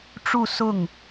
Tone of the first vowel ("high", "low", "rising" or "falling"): falling